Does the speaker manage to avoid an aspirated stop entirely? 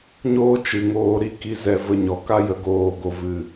yes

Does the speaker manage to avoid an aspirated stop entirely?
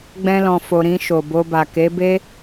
yes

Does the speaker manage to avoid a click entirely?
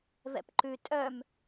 no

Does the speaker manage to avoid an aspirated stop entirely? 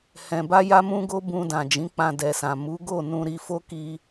yes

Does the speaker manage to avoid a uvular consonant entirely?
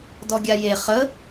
no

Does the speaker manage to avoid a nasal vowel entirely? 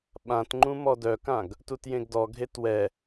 no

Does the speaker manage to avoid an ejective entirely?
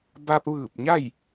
yes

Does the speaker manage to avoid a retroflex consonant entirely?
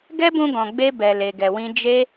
yes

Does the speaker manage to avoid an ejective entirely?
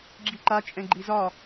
no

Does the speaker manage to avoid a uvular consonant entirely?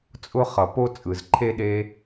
no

